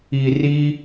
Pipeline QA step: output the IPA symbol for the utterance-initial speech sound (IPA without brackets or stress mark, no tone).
i